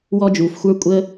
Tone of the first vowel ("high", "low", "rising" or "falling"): high